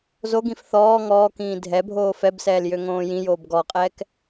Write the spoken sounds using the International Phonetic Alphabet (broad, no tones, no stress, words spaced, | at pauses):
zoɡĩf θɔː ŋɔːkĩː dʱɛbʱoː fɛbsɛːl jøŋõːjĩjoːb ɡɔqʼɛːk